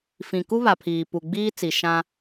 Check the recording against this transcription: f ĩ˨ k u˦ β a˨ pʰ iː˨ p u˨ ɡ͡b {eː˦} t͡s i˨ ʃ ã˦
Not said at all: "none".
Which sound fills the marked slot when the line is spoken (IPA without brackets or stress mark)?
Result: iː˦